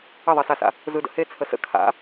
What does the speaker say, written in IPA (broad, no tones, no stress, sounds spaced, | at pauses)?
ə ðˤ e s a s a̰ | z ɯ d ə̰ h e t͡sʰ ə s ə̰ kʰ a̰